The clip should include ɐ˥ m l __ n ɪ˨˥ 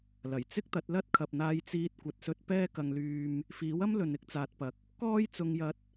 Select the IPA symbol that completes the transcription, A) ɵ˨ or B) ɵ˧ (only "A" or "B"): A